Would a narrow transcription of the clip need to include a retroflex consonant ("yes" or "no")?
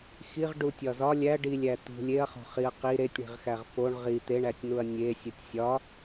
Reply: yes